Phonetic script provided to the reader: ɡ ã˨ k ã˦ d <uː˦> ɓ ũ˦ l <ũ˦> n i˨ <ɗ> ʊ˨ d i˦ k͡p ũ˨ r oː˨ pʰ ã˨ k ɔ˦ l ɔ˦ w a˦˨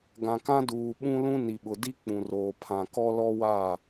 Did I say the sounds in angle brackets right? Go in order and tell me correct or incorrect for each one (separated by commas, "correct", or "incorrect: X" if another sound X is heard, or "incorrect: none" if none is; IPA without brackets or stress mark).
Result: incorrect: uː˨, correct, incorrect: ɓ